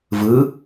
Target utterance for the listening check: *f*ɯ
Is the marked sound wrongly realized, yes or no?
yes